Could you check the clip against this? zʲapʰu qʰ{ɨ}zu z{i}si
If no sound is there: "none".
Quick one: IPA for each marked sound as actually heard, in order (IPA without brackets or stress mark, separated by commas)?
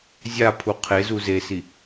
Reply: e, e